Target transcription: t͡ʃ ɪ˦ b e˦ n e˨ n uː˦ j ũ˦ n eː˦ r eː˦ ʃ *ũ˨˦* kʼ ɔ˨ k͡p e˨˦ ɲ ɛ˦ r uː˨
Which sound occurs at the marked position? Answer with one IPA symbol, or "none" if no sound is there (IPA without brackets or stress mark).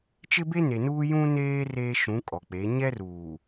ũ˨˦